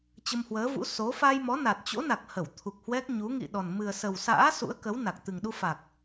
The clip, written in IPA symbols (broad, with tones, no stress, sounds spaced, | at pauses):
t͡ɕ ə˧ m h w əː˨˦ v ṵ˧˥ s o˨˦ f a˧ j m ɔ˨˦ n a˨˩ t̚ t͡ɕ o̰˧˥ n a˨˩ k̚ h ə˧˩ w t̪ʰ u˨˩ k̚ h w ɛ˦˥ k̚ ɲ u˨˦ ŋ ḭ˧˨ ɗ ɔ˨˩ n m ɨ˨˩ ə̯ s ə˨˩ w s a̰ː˧˥ s ṵ˧˥ ə̯ k ə˨˦ w n a˨˩ k̚ t̪ ɨ˨˩ ŋ ɗ u˧ f a˨˩ k̚